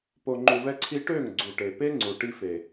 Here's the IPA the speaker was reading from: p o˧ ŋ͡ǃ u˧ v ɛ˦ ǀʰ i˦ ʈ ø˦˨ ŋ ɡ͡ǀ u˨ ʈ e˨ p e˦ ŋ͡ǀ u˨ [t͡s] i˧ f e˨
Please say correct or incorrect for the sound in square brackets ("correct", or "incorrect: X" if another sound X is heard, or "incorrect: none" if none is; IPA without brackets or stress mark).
incorrect: ʈ